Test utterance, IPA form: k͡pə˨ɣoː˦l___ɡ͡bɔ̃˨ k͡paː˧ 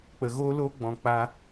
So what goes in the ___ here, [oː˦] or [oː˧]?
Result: oː˦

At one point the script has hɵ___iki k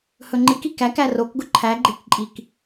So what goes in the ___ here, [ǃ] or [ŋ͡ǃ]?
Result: ŋ͡ǃ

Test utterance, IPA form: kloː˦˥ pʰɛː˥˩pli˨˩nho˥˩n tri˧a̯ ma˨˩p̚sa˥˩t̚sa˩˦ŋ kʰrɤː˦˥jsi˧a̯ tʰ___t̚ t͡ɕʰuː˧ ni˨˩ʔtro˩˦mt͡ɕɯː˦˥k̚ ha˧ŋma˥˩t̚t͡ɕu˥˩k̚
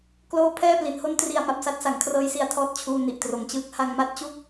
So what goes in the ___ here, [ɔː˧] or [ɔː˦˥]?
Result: ɔː˦˥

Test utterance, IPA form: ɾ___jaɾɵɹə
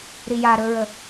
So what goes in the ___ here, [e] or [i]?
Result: i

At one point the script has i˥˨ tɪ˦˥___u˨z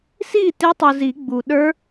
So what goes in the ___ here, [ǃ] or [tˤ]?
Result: tˤ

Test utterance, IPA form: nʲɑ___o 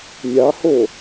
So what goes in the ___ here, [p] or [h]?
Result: h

